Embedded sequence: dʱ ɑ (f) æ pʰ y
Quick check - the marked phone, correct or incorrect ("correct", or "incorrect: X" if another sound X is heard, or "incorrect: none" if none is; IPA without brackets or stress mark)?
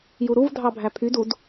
incorrect: bʱ